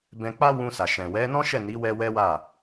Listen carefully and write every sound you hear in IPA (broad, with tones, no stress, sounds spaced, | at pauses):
b ɛ̃˧ k͡p a˦ w ũ˧ s a˨ ʃ ɛ̃˨ w ɛ˨˦ n ɔ̃˦ ʃ ɛ˦˨ n i˨˦ w ɛ˧ w ɛ˦ w a˦˨